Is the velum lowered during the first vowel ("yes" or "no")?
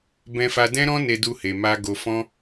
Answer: yes